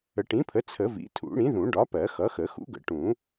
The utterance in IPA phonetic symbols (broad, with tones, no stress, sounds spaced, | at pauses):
ə˨˩˦ ʈ ĩ˩˥ pʰ ə˩˥ t͡sʰ ə˨˩˦ v ḭ˩˥ tʰ ṵ˨˩˦ ɽ ĩ˩˥ ð ũ˨˩˦ ɖ ɒ˩˥ p ɜ˨˩˦ x ʌ˩˥ x ə˨˩˦ x ṵ˩˥ ɡ ə̰˨˩˦ ʈ ũ˨˩˦